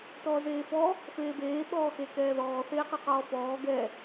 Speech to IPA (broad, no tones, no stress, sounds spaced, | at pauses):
t ɔː z eː f ɔ | f eː b eː ɓ ɔː x e k ɛː ð ɔː θ eː q ɤ q ɔː f ɔː ɡ ɛ